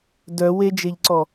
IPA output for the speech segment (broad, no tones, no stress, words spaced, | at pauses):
dœ wed͡ʒeʎǀɔ